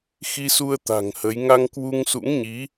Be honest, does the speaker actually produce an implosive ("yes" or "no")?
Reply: no